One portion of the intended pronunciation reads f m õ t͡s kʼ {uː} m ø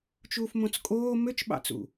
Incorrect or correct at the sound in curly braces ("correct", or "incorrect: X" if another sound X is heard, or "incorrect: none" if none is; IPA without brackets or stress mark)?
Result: incorrect: oː